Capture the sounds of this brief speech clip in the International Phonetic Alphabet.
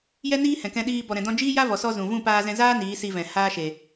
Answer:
jɛ˦niː˦ hɛ̃˨kɛ̃˧ ɗiː˧ bɔ˨ɾɛ̃˨dɔ̃˧ d͡ʒiː˦ ja˦vɔ˨sɔ˧ zũ˨ vũ˦˨paː˧zɛ̃˧zaː˦ niː˨˦si˧vɛ̃˨ haː˦ʃe˨

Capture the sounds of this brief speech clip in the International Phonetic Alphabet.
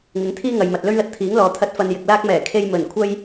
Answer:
ŋɪ˨˥ŋt̪ʰiː˥ŋɐ˨jmɐ˨t̚ lɵ˥ɥlɐ˧t̚t̪ʰiː˨˥ŋ lɔː˨ t̪ʰɐ˥t̚ fɐ˧njɪ˨k̚laː˥k̚mɛː˨˩ kʰe˥jmɵ˨˩n kʷʰɐ˥j

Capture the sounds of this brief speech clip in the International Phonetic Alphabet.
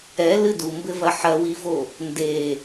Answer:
ɛlɨ dumbɘvɐ ħɐwivo | nde

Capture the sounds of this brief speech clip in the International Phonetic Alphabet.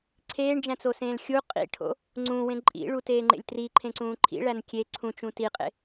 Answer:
ǀʰeːɳd͡ʒæ̃t͡sosẽːl xʲu qʼḭʈʰo̰ | ŋ͡ǀũwẽ ǃʼḭɭuteːŋ͡ǃḛlʲ triǃʰẽǀũː ǃʰḭɭæn kʲe ǀʰũt͡ʃũ tiqʼḛ

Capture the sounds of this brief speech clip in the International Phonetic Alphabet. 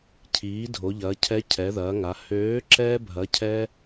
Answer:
cʰiː˩˧ dʱo˩˧ʎɐː˩˧cʰɛ˨˥ cʰɛ˩˧ðɐː˩˧ŋa˩˧ høː˨˥ ǁɛː˦bʱɐ˨˥ cʰɛ˦

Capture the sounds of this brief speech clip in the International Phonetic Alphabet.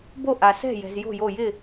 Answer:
bo˥˩ʔa˩sɛ̤˥˩jɛ̤˩z jo̤˥˩jo˧˩jɪ˥˩

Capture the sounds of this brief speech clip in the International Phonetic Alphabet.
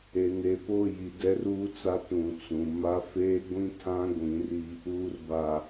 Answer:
e˨ne˨ po˦˨ji˨ dɛ˦ruː˦t͡sa˦ tũ˨t͡sũ˨ma˦ feː˦ɡʷĩ˦tʰã˦ ɡʷĩ˨˦ri˦ | uː˨rba˨

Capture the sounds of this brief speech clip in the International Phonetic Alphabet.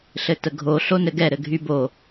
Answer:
ɬɘtəɡʱo ɬonɘɡɛ ɾɘɡʱybo

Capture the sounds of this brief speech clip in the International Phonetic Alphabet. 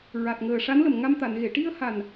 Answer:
ɹa˨˩t̚ŋəː˨˩ʂa˧˥nlə˨˩m ŋa˧mt̪a˨˩˨nɣe˨˩˨ ʈi˧ə̯ha˨˩n

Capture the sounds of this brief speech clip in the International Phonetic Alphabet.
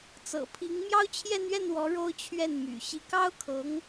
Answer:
t͡sɤ̰˨˩pʰi˧˥ŋ mjɑ˥ʊ̯t͡ɕʰjɛ˥˧nɥɛ˥˩nwɔ˧˥ ɻo˥ʊ̯t͡ɕʰɥɛ˥˩n my̰˨˩ ɕi˧˥kɑ˥ʊ̯kʰɤ˧˥ŋ

